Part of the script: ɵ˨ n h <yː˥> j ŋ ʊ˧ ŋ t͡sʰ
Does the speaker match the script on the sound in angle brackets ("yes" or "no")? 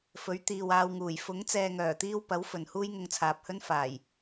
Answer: no